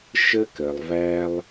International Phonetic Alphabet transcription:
ʃ ə˦ k ə˨ lˠ v æ˦ lˠ

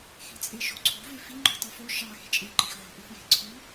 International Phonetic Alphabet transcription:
x e̤ t͡sʼ e ʃ o̤ ǀʰ o̤ v e f i ŋ͡ǃ o̤ tˤ o f o ʃ ɑ x e̤ t͡ʃʼ e ǃ i x ʕ o̤ ʔ ɯ x j e̤ ǀʰ u

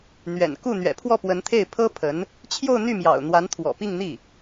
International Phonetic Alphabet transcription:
n̪ ɥ ɛ̰˨˩ n k u˥˩ n̪ ɥ ɛ̰˨˩ pʰ w ɔ˥˩ p w ə˧˥ n t̪ʰ e˥˩ ɪ̯ pʰ ɤ˥ pʰ ə˧˥ n | t͡ɕʰ j o˥˧ ʊ̯ n̪ y˥˩ m j ɑ̰˨˩ ʊ̯ n̪ w a˧˥ n t̪ʰ w ɔ̰˨˩ p i˥˧ ŋ n̪ i˥˩

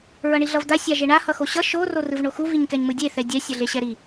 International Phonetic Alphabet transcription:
ɹ ʌ ɳ i ɮ ʌ v d̪ a sʲ a ʒ e ɳ a h ʌ x o ɕ ʌ ʃ o r o r ɯ v ɳ o x u v i ɲ k ɛ ɲ m ɯ dʲ e θ ɛ dʲ ɛ sʲ ʌ ɮ e ɕ ɛ ɾ i

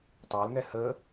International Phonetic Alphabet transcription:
tˤ ɑ l ŋ ɛ h ə

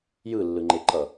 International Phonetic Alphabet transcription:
j ɯ lː ɯ ŋ͡ǃ e ǃ ʌ

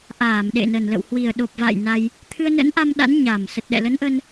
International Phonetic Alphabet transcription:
ʔ aː˧˩ m ɗ ḛ˧˨ n ə˨˩ n l ə̰˧˨ w h w i˨˩ ə̯ ɗ o˨˩ p̚ v a̰ː˧˨ j n a˧ j | t̪ʰ ɨ˧ ə̯ n ə̰˧˥ n ʔ a˧ m ɗ a̰˧˥ n ɲ a˨˩ m s ə˨˩ t̚ ɗ ɛ̰˧˨ l ə˨˦ n ʔ ə˧ n

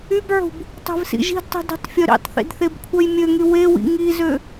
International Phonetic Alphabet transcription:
y b ʕ ṳ b | tˤ ɛ̤ v s ḭ ʒ i̤ d tˤ i̤ d i̤ tˤ fʲ œ ɾ ḭ tˤ θ ḭ d θ e b kʷʰ œ j mʲ ø ŋ y w e w ḭ ŋ i z ø

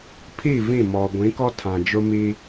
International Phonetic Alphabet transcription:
pʰ iː˦˨ v ĩ˦˨ m ɔ˨ ɡʷ ĩ˨˦ k ɔ˦ tʰ ã˨ d͡ʒ ʊ˦ m iː˦

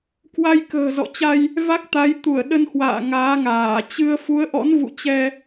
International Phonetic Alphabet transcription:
k w a˧ j k ə̤ː˨˩ z ɔ̰˧˨ t͡ɕ a˧ j | v a˦˥ k̚ t̪ a˨˦ j t̪ u˧˩ ə̯ ɗ ə˧ n h w a̰ː˧˨ ŋ aː˨˦ ŋ aː˧˩ t͡ɕ ɨ˧ ə̯ f u˨˦ ə̯ ʔ ɔ̰˧˥ n v ṵ˧˨ t͡ɕ ɛ˧

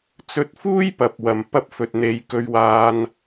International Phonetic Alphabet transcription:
t͡s ɵ˧ t̚ f uː˥ j p ɐ˨ p̚ w ɐ˨ m p ɐ˧ p̚ f ɵ˨ t̚ n̪ e˨˧ j k ɵ˧ ɥ w aː˧ n

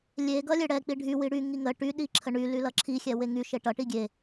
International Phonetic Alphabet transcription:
lʲ e ɡ ʌ lʲ e ɽ ɛ k͡p i ɖʱ y w i ɽ y ŋ i ŋ ə ʈ y ɗ i ǁʰ ə ɳ y l y l ʌ ǁʰ i xʲ ɛ w e ŋ y ʃ e ʈ ʌ ʈ i ɡʲ e

